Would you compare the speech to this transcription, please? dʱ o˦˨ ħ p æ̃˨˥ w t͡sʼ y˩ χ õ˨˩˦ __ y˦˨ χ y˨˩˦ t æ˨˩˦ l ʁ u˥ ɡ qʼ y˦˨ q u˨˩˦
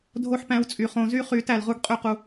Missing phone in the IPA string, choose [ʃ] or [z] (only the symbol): z